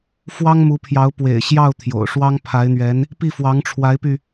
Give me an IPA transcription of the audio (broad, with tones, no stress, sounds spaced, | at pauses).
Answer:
f w ɑ˥ ŋ m u˧˥ pʰ j ɑ˧˥ ʊ̯ p w ḛ˨˩ ɪ̯ ɕ j ɑ˥˩ ʊ̯ t̪ʰ j o̰˨˩ ʊ̯ ʂ w ɑ˥ ŋ pʰ a˧˥ ɪ̯ n̪ ɥ ɛ˧˥ n | p i˥˩ f w ɑ˧˥ ŋ ʈ͡ʂʰ w a˧˥ ɪ̯ p y˧